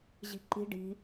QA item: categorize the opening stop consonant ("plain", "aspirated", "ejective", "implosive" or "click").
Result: click